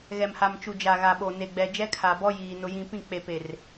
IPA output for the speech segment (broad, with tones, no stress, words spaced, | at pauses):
ɣɛ˨mha˨m t͡ʃu˨d͡ʒa˨ ɣa˨ɓo˨ne˨ɡ͡bɛ˨ d͡ʒɛ˦kʰa˨bɔ˦ jiː˨ nʊ˦jĩ˦ pĩ˦˨k͡pe˨pe˨r